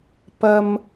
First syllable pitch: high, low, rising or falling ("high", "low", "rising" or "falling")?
high